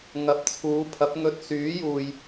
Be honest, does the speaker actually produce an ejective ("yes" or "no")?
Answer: no